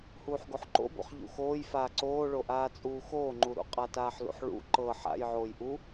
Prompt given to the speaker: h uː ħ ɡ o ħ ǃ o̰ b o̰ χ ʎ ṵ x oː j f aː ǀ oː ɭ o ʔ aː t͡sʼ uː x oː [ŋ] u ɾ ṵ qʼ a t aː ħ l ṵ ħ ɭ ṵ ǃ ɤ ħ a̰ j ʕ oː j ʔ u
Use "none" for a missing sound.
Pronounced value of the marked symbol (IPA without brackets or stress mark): ŋ͡ǃ